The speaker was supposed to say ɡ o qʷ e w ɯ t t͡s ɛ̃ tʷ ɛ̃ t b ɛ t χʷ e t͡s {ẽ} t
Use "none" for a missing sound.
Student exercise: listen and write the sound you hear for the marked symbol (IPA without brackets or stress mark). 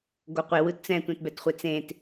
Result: ẽ